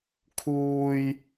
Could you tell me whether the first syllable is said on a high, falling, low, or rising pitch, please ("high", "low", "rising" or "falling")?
high